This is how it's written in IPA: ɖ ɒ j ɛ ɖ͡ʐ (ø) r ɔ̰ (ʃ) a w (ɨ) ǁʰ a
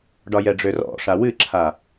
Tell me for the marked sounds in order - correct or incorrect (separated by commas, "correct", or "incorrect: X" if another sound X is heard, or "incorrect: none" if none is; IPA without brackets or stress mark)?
correct, incorrect: ʂ, correct